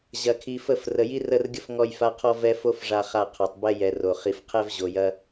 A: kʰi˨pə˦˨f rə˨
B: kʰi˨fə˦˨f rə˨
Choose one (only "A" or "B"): B